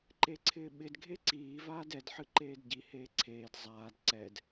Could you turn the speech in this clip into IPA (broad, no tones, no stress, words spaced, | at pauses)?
ǃeǀʰɪːɓɪd ɡʱeǀiː vaːdɛd ħɨǃeːdɟi heːǀʰeːd zˤaːd ǀɛd